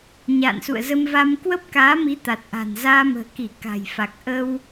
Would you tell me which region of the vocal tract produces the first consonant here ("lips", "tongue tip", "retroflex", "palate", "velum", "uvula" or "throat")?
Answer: palate